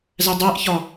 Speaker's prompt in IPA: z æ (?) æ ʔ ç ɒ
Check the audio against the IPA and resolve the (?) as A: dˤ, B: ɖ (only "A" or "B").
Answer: A